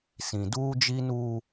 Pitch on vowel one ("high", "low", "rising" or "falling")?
low